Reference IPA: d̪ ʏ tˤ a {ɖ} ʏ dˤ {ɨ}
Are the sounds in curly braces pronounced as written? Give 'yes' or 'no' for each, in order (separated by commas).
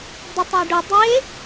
yes, no